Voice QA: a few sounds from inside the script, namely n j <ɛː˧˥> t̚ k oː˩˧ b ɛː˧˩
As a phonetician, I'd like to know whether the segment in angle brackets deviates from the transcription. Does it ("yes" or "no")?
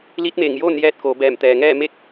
yes